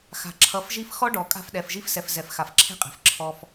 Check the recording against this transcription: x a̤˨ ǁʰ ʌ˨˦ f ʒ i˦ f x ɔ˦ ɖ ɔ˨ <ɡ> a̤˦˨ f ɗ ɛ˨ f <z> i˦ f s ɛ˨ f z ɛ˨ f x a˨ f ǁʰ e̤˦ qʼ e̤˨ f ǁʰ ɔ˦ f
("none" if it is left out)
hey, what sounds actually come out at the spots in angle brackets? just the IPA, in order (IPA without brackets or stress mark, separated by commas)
kʼ, ʒ